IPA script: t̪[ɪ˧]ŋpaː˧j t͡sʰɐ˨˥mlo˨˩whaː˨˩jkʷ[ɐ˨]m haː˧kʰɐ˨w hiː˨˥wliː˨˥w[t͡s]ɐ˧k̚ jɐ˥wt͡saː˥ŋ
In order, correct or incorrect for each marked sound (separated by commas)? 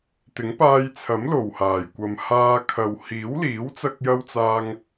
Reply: incorrect, correct, correct